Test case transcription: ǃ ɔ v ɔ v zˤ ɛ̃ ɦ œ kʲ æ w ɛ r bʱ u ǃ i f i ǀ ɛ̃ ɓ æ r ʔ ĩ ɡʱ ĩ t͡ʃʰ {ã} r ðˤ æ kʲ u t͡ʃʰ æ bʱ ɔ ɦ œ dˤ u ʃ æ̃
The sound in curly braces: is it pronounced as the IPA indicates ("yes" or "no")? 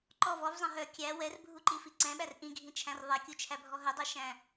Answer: no